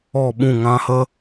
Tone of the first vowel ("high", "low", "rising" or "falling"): falling